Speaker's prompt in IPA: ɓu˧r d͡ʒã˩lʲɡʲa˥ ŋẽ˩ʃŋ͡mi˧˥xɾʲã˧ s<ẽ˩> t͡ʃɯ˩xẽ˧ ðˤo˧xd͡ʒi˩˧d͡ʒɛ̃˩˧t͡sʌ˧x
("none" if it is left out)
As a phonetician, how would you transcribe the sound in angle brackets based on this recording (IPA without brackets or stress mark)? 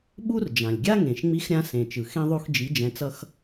ẽ˩